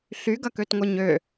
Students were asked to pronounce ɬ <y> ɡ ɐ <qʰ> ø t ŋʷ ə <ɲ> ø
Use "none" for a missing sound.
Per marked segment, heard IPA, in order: y, k, ɲ

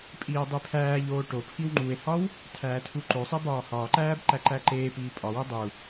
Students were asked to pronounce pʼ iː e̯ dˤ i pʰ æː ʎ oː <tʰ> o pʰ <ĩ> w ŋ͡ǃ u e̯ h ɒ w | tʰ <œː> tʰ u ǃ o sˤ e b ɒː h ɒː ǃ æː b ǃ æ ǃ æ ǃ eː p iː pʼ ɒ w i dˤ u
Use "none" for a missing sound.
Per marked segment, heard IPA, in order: ʈ, i, æː

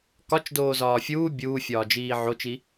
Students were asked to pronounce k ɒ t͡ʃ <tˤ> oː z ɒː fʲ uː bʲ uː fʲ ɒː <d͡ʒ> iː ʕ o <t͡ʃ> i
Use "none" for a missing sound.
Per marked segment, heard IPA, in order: d, d͡ʒ, t͡ʃ

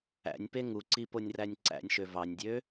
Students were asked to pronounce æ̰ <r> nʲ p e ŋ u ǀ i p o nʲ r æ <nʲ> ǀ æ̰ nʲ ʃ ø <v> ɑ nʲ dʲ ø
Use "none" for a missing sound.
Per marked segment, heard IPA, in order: none, nʲ, v

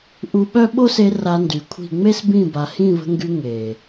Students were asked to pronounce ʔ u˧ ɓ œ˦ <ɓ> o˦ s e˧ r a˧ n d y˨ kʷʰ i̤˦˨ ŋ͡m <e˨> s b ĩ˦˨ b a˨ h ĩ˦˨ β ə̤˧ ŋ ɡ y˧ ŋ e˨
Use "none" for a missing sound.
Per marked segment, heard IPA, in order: ɓ, e˦

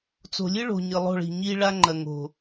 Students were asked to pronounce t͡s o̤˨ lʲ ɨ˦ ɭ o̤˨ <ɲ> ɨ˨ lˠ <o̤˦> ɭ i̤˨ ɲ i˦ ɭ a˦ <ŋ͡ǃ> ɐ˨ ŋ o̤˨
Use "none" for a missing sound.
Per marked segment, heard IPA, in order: ɲ, o̤˦˨, ŋ͡ǃ

